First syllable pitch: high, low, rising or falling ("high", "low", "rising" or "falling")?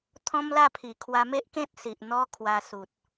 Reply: high